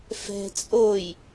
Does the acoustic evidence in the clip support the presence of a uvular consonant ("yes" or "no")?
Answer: no